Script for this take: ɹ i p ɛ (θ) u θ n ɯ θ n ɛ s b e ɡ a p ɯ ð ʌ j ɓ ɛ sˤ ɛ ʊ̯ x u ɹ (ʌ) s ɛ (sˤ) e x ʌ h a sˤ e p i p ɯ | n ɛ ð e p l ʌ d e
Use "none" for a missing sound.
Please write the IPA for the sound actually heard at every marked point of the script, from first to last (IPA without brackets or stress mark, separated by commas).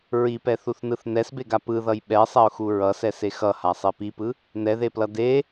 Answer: θ, ʌ, s